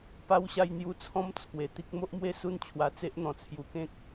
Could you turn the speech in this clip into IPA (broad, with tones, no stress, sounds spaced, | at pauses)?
p a˧ w ɕ a˧ j n̪ j u˧ t͡sʰ ɔ̃˦ m t͡sʰ w e˨˩ t̪ i˦ k̚ m o˦ ʔ m w e˥˧ s u˥˧ n t͡ɕʰ w a˧ t͡s e˦ ʔ n̪ ɔ̃˨˩ t͡sʰ j u˧ k ẽ˦ k̚